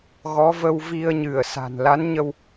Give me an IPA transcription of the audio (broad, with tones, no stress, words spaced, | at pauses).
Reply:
ɣɔ˨˦və˧w vi˧ə̯ɲɨ˧˩ə̯sa̤˨˩n la˨˦nɲə˧w